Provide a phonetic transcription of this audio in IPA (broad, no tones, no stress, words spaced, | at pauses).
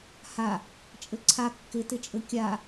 ha | t͡ʃʼɘǀʰa kːɪtɪt͡ʃʼɘ kʲa